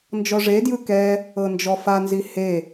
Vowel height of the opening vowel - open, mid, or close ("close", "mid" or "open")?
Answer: mid